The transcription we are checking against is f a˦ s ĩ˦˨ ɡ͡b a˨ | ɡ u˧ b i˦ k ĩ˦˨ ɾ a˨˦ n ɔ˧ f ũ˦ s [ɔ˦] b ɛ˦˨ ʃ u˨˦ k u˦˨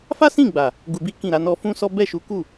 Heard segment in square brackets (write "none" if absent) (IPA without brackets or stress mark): ɔ˦